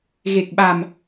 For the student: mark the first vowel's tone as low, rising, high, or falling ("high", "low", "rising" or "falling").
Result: low